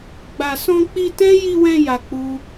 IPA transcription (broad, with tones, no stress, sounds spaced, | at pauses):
ɡ͡b a˨ s ɔ̃˧ k͡p i˧ t ɛ̃˦ j i˧ w ɛ̃˧ j a˧ k͡p u˦